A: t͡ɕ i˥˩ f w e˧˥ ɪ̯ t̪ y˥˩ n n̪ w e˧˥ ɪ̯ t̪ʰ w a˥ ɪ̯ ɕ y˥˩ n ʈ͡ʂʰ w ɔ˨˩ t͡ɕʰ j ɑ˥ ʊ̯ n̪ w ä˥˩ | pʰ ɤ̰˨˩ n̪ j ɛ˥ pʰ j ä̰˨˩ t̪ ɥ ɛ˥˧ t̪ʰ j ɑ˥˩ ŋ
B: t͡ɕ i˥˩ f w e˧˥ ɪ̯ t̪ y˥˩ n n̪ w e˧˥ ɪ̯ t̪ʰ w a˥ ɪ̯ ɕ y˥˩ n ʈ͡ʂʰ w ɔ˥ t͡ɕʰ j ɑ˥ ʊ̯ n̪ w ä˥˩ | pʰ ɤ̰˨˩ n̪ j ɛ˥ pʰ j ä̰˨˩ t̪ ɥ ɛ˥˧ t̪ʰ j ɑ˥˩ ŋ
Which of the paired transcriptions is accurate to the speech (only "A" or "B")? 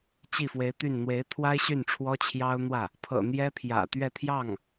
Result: B